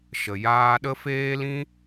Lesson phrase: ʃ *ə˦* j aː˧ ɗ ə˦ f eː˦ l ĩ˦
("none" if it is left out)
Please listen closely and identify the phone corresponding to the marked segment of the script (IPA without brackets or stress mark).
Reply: ə˨